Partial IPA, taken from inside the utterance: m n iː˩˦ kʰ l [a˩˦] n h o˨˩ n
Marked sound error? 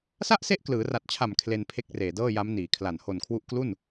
yes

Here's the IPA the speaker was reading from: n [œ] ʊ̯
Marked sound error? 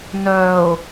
no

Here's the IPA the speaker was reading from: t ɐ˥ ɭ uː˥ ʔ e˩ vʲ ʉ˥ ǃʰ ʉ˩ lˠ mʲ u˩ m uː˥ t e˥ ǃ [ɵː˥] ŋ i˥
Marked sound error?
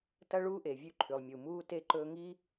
no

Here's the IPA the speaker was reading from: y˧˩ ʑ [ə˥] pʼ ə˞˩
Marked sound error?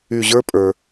yes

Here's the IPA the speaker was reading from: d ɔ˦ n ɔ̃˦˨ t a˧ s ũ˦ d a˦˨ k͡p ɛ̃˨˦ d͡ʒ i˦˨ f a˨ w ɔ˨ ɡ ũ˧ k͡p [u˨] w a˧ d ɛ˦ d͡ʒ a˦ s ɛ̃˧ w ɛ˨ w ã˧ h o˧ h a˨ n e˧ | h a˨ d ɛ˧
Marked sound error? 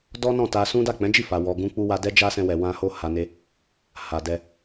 yes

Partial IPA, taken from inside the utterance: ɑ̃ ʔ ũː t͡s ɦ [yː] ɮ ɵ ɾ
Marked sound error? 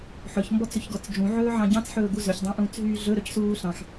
no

